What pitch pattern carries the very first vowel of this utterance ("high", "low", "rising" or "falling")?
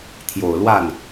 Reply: low